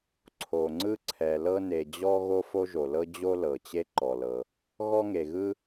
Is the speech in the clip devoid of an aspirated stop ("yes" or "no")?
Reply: no